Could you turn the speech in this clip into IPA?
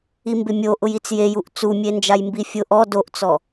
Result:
i m b ɪ mʲ o ʔ ʊ j i t͡s j e j u ʔ t͡s u mʲ e n d͡ʒ a j m b i fʲ ʊ ʔ ɔ d o ʔ t͡s ɔ

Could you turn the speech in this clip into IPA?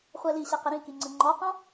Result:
χʷ ɛ l i ɕ ɛ q ɘ ɾ ĩ k i ŋ͡ǀ ɘ ŋ͡ǃ ɔ q ɔ̃

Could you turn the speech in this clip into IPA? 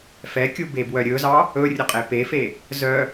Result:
f ɛ kʲ u b e b w œ ɾʲ ɵ z ɑ | ɵ rʲ ɵ qʼ e p e f e | z œ

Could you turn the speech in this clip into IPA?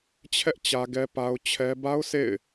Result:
t͡ɕʰ ɛ˦ ʔ t͡ɕ ä˦ ɡ ɛ˦ p a˦ ʊ̯ t͡ɕʰ ɛ˦ b a˦ ʊ̯ sʰ ḛ˦˨ ɪ̯

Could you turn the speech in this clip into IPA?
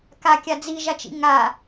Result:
k a kʲ a d͡z i ʒ a t͡ʃ ḭ ŋ a

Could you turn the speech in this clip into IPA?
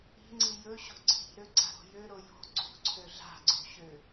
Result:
i̤ ŋ͡ǀ i j ɵ ɕ o̤ ǀʰ i̤ ɾ ø ɡ͡ǀ a̤ ɾ o̤ j ø ɾ o j o̤ ǀ ṳ ǀʰ ø ɮ a̤ ɡ͡ǀ o̤ ɕ ø

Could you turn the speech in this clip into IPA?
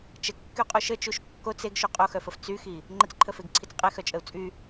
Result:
t͡ʃ ə kː y qʼ u ʃ ə t͡ʃ u ʃ kː o t͡s e ɡ ʃ u qʼ o x œ f ə f t͡s y x i | ŋ͡ǃ ə t͡s ǃʰ ə f e ɡ ǀʰ i t͡s qʼ e x œ t͡ʃʼ ə u̯ t͡sʼ y

